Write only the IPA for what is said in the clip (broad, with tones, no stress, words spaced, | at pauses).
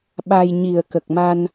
ɓa˧j ɲi˨˩ə̯kə˨˩k̚ma˧n